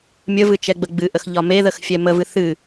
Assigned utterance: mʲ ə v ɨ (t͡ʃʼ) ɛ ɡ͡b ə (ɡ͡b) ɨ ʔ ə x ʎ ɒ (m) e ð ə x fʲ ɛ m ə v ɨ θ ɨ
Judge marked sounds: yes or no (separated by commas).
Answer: no, yes, yes